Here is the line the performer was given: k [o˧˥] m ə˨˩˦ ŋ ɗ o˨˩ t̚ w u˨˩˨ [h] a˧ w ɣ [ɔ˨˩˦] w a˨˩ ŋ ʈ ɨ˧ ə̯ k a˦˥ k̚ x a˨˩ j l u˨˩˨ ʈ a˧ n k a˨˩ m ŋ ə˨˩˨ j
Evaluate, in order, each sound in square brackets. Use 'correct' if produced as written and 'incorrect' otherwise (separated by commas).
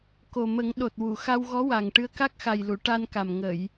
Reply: incorrect, incorrect, incorrect